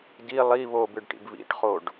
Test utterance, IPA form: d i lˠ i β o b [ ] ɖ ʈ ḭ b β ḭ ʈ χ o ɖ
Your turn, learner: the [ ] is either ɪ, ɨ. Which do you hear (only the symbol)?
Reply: ɨ